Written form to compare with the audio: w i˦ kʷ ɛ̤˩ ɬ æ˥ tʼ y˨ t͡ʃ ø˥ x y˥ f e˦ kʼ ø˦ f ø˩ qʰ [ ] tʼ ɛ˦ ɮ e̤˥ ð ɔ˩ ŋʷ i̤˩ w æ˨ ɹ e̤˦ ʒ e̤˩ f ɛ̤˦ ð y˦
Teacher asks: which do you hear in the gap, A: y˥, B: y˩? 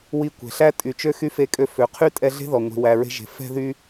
A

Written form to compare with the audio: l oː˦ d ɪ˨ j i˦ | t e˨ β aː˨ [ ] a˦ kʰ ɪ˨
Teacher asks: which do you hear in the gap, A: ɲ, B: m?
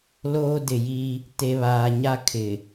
A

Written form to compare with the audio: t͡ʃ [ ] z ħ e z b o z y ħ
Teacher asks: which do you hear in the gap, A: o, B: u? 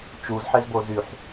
B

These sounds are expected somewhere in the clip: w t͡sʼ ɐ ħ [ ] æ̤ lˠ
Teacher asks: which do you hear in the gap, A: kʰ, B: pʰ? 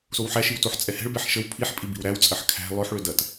A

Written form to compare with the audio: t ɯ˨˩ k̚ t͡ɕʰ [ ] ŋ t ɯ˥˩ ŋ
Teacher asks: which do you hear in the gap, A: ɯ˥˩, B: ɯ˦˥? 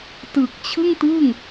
A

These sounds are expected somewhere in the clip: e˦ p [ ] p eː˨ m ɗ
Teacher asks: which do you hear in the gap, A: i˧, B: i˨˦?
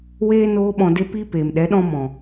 A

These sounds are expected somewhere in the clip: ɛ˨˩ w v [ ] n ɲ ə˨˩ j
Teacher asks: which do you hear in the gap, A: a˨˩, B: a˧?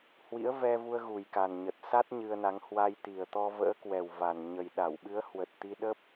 A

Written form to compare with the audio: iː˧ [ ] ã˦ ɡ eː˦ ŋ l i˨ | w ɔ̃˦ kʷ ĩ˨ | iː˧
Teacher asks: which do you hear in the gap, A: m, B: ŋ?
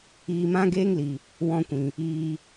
A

